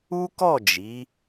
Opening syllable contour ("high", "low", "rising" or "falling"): high